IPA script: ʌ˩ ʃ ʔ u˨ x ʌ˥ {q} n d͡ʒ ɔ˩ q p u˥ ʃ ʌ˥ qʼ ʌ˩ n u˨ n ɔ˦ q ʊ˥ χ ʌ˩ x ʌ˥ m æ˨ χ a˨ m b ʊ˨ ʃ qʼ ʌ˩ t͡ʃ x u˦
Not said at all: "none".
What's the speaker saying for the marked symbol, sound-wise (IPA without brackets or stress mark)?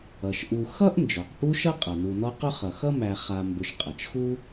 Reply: ʔ